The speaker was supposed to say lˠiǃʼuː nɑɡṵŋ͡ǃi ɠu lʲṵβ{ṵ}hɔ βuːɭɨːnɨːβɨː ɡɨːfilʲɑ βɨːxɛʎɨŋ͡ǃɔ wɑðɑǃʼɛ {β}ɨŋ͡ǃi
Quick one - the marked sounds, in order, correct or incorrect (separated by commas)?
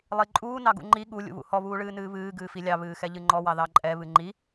correct, correct